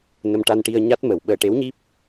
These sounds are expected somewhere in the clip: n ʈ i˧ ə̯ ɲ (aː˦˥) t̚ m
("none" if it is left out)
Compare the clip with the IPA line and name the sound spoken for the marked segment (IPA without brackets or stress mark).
a˦˥